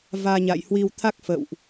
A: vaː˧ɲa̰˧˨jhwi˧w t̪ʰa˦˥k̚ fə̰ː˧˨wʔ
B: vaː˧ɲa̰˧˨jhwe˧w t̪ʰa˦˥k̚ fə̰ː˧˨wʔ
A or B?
A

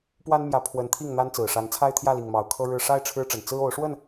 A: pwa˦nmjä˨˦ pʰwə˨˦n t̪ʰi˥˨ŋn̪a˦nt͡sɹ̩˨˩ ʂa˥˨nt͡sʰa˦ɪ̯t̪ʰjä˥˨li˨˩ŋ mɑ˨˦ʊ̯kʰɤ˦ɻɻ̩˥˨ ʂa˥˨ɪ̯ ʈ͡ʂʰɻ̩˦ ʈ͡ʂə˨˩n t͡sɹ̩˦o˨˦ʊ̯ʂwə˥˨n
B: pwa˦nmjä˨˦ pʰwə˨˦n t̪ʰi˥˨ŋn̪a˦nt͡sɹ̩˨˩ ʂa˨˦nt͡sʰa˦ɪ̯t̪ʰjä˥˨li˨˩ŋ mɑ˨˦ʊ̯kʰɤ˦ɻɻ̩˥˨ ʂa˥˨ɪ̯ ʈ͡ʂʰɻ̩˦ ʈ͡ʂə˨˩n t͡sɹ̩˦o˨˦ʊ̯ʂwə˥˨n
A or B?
B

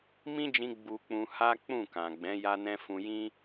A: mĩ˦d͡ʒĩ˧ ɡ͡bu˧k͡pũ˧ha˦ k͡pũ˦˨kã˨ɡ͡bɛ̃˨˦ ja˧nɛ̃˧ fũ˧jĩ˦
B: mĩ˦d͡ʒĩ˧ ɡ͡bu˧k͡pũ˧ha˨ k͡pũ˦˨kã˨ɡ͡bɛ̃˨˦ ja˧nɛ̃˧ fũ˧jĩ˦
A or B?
A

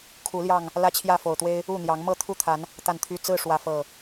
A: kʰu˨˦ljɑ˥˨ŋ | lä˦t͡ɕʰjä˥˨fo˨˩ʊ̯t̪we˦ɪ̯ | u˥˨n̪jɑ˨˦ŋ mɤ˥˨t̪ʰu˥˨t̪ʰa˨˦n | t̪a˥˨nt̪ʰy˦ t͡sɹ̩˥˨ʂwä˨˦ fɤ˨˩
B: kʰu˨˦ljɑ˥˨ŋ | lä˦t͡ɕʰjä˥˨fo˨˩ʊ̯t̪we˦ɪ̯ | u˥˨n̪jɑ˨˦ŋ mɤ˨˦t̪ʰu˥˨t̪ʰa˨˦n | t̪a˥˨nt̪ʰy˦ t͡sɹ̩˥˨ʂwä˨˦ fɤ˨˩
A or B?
A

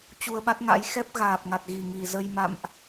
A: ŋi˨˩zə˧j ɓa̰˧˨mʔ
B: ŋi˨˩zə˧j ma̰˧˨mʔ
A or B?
B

